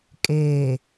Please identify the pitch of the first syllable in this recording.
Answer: low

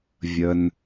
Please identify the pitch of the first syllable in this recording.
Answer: high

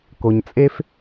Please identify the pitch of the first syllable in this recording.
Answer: low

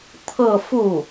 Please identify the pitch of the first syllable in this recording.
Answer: falling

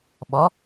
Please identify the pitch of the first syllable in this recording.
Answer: rising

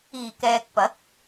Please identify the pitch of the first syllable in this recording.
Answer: low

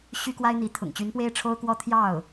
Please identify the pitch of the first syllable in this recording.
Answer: high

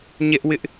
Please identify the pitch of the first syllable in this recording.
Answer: high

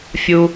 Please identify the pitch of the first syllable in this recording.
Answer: high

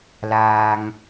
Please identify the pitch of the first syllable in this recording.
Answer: low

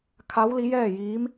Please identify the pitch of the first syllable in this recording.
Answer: rising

